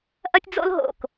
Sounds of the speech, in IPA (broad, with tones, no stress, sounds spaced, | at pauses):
ʔ ɐ˥ tʲ d͡z o̰˥ l ɦ o̰˩ k